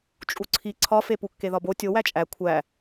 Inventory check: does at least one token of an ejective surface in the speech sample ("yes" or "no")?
yes